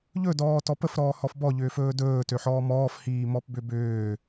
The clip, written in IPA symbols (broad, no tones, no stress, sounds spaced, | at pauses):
ʎ ɵ d ɔː t ɔ p ə f ɾ ɔː h ɔ f b ɔ ʎ ʏː f ɵː d ɵː t ø ħ ɔː m ɔː f h iː m ɔ p b ʏ b ʏː